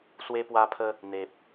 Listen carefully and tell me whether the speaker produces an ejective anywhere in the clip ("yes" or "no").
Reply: no